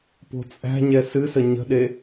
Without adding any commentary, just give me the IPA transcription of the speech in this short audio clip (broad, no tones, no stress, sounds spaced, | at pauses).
p o̤ t͡sʼ æ̤ ɲ ɛ s ɨ s ə ɲ ə̤ ɗ e